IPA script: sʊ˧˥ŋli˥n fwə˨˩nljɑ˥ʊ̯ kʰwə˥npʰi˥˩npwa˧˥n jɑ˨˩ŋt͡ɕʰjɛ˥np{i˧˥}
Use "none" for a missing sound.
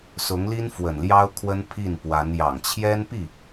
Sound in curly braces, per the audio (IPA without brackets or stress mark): i˥˩